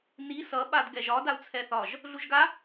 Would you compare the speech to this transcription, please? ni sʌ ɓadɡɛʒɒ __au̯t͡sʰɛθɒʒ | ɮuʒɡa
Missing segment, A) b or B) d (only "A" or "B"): B